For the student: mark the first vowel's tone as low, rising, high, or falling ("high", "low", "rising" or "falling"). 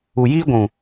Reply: low